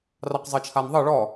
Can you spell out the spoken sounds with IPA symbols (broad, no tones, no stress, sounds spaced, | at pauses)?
r ɑ q zˤ ɤ t͡ʃʰ a n ðˤ ɤ ɭ ɔ